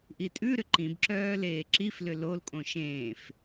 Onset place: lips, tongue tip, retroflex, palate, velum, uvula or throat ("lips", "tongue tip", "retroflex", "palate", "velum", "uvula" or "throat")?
throat